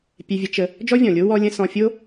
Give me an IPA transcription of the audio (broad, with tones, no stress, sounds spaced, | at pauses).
pʲ ɛ˧ vʲ ə˧ t͡ʃ ə˧ | d͡ʒ ɔ˥ vʲ ɔ̃˩ lʲ o˥ w ɔ˥ lʲ ə̃˥ s ɔ̃˧ fʲ o˥